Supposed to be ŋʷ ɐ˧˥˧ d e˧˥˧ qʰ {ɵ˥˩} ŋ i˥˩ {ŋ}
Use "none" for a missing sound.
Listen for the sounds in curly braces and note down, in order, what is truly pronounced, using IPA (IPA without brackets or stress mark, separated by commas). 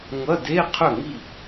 ɵ˥˩, none